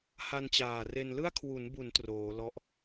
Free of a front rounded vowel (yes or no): yes